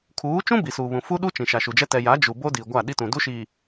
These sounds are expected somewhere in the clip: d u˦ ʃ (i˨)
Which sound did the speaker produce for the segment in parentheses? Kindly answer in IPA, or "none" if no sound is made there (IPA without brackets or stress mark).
i˨